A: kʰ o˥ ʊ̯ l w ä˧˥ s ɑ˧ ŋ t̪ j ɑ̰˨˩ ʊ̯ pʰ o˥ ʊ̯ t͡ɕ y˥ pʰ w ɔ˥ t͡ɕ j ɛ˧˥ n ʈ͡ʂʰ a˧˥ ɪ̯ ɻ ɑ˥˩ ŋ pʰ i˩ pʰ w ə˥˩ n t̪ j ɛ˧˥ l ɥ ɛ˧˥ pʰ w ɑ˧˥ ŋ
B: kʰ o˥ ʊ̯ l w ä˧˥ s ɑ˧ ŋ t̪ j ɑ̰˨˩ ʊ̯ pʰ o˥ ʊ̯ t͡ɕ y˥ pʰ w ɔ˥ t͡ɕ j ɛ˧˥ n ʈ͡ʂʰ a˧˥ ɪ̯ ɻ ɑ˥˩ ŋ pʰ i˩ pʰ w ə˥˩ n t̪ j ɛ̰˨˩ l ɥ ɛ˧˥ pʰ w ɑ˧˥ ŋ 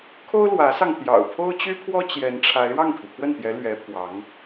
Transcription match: A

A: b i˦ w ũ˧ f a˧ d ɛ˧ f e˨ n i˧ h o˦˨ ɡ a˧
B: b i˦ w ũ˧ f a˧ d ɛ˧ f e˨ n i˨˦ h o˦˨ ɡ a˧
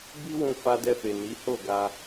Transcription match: B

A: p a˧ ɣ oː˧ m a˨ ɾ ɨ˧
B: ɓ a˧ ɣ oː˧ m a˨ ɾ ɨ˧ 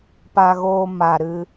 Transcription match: A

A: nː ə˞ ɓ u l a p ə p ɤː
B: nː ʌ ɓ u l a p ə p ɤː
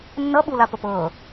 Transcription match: B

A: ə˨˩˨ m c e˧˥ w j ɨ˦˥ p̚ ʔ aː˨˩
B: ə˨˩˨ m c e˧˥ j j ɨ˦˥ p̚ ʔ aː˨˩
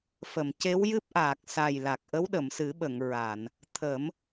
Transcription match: A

